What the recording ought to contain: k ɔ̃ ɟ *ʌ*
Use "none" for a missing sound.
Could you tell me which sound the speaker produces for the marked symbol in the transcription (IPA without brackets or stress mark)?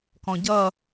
ʌ